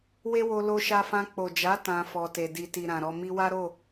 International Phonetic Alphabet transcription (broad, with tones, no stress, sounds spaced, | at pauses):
w e˦ w o˧ l o˧ ʃ a˧ f ã˧ k͡p o˨ d͡ʒ a˨˦ t ã˧ f ɔ˧ t e˧ d i˨ t i˨ ɾ ã˨ ɾ ɔ˧ m i˧ w a˦ ɾ o˦˨